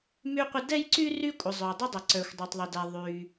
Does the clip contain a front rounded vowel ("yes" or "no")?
yes